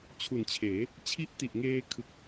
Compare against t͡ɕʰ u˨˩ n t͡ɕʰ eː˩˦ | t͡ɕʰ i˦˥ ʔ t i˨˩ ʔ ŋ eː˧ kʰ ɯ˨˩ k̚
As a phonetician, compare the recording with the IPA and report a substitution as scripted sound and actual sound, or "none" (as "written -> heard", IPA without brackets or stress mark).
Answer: none